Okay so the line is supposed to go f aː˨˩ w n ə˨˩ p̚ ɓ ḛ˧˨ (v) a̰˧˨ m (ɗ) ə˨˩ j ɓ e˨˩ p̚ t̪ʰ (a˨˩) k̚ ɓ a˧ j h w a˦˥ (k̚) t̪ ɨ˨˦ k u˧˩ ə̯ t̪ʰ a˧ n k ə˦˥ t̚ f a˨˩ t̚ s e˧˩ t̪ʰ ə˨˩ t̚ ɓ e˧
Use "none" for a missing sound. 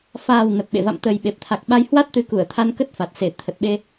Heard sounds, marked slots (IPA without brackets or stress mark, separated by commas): v, t̪, a˨˩, t̚